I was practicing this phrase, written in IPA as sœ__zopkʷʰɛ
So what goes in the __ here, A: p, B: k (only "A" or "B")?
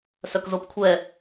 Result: B